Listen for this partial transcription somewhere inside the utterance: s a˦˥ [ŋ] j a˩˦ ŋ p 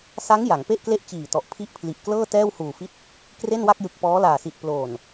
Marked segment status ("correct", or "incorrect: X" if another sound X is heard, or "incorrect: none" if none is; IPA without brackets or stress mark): correct